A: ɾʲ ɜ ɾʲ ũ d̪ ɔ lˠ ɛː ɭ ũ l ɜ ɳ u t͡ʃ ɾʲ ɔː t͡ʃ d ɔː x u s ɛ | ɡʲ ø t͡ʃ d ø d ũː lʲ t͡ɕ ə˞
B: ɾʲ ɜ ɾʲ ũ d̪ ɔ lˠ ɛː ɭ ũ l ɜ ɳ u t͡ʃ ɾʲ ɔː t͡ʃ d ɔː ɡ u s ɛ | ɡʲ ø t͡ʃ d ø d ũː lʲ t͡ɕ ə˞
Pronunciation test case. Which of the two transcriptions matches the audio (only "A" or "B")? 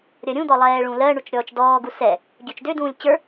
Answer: B